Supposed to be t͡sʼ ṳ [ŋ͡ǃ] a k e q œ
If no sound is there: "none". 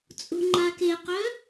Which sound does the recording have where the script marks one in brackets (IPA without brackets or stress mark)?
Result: ŋ͡ǃ